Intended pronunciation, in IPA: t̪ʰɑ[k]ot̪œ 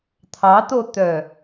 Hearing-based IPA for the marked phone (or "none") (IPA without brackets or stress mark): t̪